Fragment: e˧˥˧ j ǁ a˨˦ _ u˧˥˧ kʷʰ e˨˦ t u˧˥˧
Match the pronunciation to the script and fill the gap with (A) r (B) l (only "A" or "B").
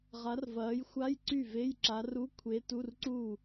A